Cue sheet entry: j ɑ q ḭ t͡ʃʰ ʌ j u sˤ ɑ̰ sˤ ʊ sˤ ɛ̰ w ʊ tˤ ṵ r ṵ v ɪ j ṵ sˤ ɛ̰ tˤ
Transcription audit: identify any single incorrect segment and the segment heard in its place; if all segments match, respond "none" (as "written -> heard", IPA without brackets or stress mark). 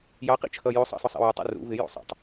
none